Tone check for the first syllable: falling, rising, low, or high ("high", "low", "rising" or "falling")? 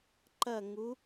falling